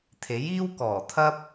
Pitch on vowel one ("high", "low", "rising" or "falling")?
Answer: rising